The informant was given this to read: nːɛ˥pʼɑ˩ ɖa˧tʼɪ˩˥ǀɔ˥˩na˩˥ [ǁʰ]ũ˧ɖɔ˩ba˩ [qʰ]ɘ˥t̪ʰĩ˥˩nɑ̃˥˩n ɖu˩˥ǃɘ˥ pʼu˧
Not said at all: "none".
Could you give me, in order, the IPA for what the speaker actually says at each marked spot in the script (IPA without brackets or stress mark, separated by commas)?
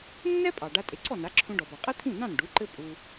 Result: ǁʰ, qʼ